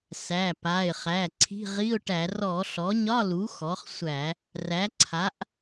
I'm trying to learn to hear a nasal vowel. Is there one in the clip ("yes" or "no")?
no